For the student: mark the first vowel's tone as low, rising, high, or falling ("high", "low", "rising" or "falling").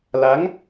rising